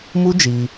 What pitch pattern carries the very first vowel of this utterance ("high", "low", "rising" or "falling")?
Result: high